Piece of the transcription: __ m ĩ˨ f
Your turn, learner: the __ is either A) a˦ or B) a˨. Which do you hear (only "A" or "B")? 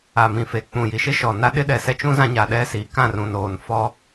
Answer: B